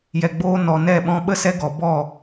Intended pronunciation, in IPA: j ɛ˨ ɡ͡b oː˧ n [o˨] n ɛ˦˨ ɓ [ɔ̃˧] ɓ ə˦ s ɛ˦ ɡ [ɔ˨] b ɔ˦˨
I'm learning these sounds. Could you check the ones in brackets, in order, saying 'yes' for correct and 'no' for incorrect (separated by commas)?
no, yes, yes